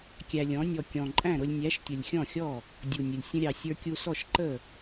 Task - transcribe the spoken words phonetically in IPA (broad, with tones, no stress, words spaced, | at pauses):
kʲæ˧lʲɔ̃˨˥nʲɔ˧ kʲɔ̃˨˩ǃʼæ̃˥˩ ɾʊ˧lʲnʲæ˨˥ʃtʲʊ˨˩lʲ xʲɔ̃˥˩xʲɔ˥˩ | dʲu˨˩nʲə˨˩lʲ sʲə̃˧ɾʲɑ˨˩ sʲə˞˧kʲu˧sɔ˥˩ʃ ǃə˥˩